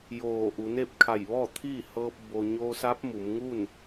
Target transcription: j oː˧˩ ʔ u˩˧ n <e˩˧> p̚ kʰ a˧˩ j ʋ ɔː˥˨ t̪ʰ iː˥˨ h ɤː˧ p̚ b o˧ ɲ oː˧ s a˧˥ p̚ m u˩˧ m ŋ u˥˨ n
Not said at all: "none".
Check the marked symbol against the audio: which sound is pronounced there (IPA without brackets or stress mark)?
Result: e˥˨